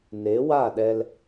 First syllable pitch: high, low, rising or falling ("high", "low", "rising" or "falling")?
rising